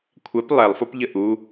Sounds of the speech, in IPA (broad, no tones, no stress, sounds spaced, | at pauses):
kʷʰ ɛ p lˠ ɛ lˠ f o p ʎ ə ʔ u